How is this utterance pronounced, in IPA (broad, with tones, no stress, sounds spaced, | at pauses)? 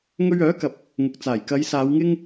ŋ ɵ˧ ɥ œː˨˥ k ɐ˨ p̚ | ŋ ʊ˨ k̚ t͡s aː˨˩ j k ɐ˨˧ j s aː˨˧ w ŋ ɪ˥ ŋ